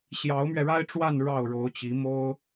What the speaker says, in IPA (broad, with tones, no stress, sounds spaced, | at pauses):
ɕ j ɑ˧˥ ʊ̯ m ɥ ɛ˧ ɻ a˥ ɪ̯ ʈ͡ʂ w a˥˧ n ɻ ɑ˥˩ ʊ̯ ɻ o˧˥ ʊ̯ t͡ɕ i˧˥ m o˥ ʊ̯